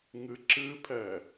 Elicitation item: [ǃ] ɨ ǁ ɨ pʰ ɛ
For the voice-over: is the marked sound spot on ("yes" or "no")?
no